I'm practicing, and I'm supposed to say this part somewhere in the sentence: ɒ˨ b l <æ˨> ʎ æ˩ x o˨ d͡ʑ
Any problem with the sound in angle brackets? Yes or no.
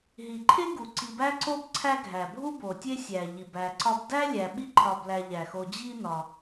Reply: no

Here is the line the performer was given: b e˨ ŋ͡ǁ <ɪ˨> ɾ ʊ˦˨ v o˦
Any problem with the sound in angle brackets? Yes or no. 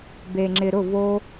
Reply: no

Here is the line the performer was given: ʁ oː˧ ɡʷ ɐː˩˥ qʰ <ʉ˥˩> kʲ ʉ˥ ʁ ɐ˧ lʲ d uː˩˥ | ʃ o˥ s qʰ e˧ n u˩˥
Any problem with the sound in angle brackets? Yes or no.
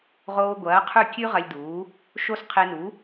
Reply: no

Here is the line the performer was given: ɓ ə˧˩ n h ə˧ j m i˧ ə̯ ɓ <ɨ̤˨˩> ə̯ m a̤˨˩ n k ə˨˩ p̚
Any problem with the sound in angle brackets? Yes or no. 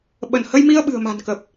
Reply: no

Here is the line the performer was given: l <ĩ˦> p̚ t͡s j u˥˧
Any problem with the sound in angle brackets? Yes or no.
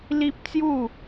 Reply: yes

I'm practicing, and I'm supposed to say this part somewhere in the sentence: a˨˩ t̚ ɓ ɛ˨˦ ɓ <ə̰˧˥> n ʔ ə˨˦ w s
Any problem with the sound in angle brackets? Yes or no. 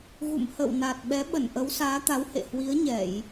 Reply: yes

